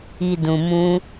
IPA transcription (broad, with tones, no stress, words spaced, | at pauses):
i˨dũ˨ mũ˧